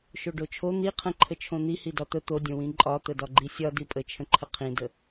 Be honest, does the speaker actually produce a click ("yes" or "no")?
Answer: yes